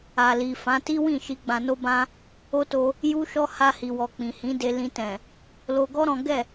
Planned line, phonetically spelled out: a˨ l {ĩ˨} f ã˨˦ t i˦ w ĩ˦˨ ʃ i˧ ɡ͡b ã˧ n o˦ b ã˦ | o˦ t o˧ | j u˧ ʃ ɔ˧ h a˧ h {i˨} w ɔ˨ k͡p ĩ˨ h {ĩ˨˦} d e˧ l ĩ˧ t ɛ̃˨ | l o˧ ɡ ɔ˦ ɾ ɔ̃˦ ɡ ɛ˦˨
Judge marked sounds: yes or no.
no, yes, yes

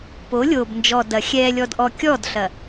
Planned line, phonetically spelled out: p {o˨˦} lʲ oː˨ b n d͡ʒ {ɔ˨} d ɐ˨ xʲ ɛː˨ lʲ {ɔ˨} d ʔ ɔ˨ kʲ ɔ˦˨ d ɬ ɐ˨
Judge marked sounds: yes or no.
yes, yes, yes

